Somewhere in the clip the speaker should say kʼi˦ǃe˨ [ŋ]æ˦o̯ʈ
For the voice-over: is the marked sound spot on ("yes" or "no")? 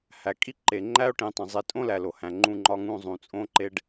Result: no